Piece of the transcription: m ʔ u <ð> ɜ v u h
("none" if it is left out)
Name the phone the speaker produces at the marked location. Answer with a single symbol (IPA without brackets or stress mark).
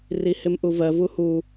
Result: v